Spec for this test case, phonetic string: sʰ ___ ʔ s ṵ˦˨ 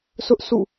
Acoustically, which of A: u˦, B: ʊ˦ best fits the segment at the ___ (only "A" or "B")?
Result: B